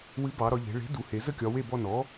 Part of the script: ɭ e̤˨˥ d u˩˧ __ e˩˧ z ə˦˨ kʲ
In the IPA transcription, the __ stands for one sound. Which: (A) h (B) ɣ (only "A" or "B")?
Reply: A